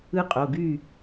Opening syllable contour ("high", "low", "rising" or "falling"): high